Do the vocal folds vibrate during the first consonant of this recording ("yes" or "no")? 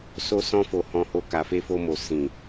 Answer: no